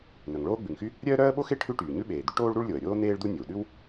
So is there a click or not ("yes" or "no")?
no